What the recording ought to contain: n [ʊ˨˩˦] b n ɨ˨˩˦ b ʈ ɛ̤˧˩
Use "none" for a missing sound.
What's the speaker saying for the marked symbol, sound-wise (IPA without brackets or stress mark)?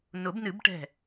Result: ʊ˨˩˦